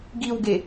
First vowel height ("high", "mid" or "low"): high